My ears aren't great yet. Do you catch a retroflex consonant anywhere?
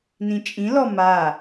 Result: no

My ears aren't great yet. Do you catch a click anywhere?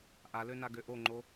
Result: yes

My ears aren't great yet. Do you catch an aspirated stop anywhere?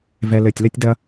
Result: no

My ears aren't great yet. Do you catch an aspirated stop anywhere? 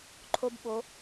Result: yes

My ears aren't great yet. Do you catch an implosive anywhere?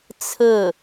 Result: no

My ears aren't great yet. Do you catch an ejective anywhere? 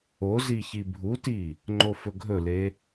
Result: no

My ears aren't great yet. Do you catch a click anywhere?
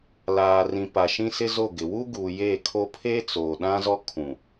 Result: no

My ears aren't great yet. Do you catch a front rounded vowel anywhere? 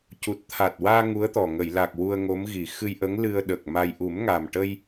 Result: no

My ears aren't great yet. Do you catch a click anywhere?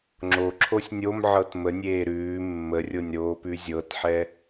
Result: yes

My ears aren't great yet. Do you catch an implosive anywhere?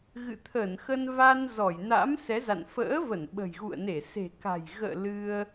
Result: yes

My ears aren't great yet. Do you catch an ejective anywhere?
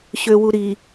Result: no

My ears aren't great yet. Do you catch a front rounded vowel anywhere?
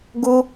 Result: no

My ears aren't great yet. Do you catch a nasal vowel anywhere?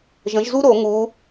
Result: yes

